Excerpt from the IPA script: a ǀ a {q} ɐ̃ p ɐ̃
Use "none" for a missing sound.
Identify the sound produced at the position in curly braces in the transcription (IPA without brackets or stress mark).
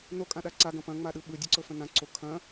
ɡ